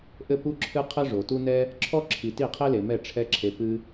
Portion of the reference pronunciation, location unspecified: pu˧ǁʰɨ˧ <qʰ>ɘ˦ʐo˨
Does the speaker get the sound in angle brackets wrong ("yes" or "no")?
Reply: no